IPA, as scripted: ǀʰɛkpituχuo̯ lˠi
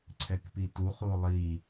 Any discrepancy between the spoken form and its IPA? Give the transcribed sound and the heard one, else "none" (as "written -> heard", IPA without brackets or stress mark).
none